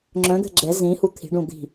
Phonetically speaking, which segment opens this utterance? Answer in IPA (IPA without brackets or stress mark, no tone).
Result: ŋ͡ǁ